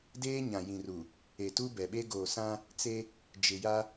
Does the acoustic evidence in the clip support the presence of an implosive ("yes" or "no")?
yes